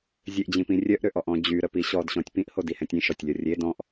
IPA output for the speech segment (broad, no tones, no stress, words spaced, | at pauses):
zʲeʔd͡ʑĩpĩ rʲœʔɾøʔɔʔɔ̃ d͡ʑyɾəpi ɕɔdɕɔ̃tʲ pĩʔhodihɛ̃tʲ ĩʃɔtʲlʲɔ rʲe dɔ̃ʔ